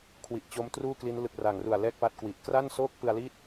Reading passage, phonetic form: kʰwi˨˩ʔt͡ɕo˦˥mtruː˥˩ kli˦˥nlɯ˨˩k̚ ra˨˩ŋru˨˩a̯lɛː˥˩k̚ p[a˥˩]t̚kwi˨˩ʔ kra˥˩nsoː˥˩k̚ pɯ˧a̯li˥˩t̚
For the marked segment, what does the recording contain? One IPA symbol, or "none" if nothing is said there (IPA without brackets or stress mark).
a˥˩